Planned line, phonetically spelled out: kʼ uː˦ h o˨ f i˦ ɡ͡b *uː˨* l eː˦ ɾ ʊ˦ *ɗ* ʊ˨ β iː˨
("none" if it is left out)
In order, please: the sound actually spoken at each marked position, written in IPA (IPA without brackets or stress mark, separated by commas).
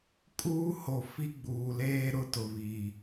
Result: uː˨, t